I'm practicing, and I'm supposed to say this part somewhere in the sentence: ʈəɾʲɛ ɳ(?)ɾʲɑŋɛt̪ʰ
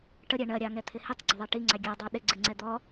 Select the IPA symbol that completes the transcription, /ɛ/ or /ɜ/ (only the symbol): ɜ